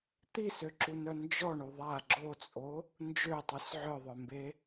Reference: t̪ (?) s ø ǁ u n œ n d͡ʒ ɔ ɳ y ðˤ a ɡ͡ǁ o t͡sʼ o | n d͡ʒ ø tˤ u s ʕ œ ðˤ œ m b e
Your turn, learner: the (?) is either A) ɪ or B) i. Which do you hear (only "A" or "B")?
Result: B